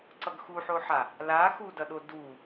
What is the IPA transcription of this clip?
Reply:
ǀʌɡxuħoħa | la xudʌɗo du

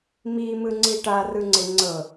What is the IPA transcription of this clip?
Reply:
mimɯŋ͡ǀi ʈarɯŋ͡ǀe ŋ͡ǀɤ

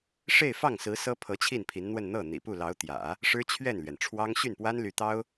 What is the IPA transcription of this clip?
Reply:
ʂe˥˧ɪ̯fɑ˥˩ŋsɹ̩˧˥ sɤ˥pʰɤ˧˥ t͡ɕʰi˥˩npʰi˧˥nn̪wə˥˧n n̪ɤ˥˩ n̪ḭ˨˩pu˥˩lɑ˧˥ʊ̯ t̪jä̰˨˩˦ | ʂɻ̩˥t͡ɕʰɥɛ˥˩nlɥɛ˩nʈ͡ʂʰwɑ˥ŋ ɕy˥˩npwa˥nly˧˥t̪ɑ˥ʊ̯

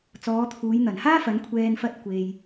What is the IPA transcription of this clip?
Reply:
t͡sɔː˨˧t̪ʰuː˨˧j n̪ɐ˨˩nhaː˥fɐ˨˧n kʷʰɛː˧n fɐ˥t̚kʷe˧j

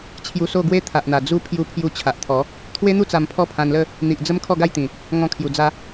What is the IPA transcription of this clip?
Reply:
t͡ɕʰju˧so˥˧ɡwe˦ t̪ʰa˨ʔn̪a˨˩ d͡zu˦ pʰju˧pʰju˧ t͡ɕʰa˨ʔt̪ʰɔ˨˦ | t̪ʰwe˦n̪u˦ t͡sa˧mpʰɔ˥˧pʰã˧nlə˥˧ | n̪i˨ʔd͡zə˦m kʰɔ˥˧ɡa˥˧jt̪ĩ˨˩ | ŋɔ̃˧kʰju˨˩d͡za˧

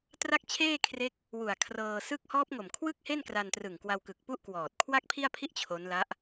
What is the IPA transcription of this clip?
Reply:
tra˥˩k̚t͡ɕʰeː˥˩ kʰre˦˥k̚ | wu˨˩a̯kʰrɤː˧ sɯ˦˥k̚hɔː˦˥p̚ŋo˨˩m kʰwɯ˥˩k̚he˥˩nkra˧ntrɯ˨˩ŋ kwa˧wkɯ˨˩k̚pu˥˩ʔ kwɔː˨˩t̚ kʰwa˥˩k̚pʰi˥˩a̯pʰi˥˩ʔ t͡ɕʰo˦˥nla˦˥ʔ

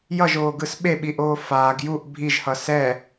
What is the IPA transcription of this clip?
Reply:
jʌʒoːɡɯs ɓeɓiʔoː faːɡ juʔ bʱiʒhʌ sɛ

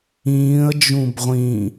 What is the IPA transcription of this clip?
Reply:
ĩːə̯d͡ʒũb ʁʷĩ

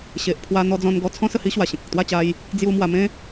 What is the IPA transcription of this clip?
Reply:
ɕe˨ʔ pʰwa˧n̪ɔ˧d͡zɔ̃˧n ɡɔ˧t͡sʰɔ̃˦ sə˥˧hi˦ɕwa˨˩ɕẽ˨k̚ ə˨k̚t̪wa˥˧t͡ɕa˧j | d͡zju˧ mwa˧mẽ˦

